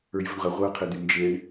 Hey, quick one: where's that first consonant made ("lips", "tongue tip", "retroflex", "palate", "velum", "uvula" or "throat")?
palate